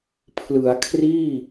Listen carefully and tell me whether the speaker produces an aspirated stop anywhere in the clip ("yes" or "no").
yes